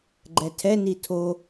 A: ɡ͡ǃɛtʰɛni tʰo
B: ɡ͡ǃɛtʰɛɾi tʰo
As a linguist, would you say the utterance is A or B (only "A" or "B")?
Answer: A